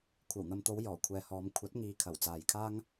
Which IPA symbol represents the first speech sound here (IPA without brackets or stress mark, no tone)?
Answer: kʷʰ